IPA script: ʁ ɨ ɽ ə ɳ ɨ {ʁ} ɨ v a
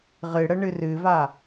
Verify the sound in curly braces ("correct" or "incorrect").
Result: incorrect